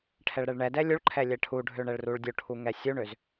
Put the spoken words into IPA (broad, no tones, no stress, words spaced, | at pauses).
ʈʰɛɭɾɛɭɳɛdɛ lʲuɭǃʰɛ lʲɛʈʰuɖʱø ɳɛɭruɭdʲoʈʰu ŋɛsʲuɳøz